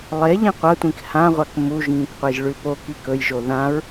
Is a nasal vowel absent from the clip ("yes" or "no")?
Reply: no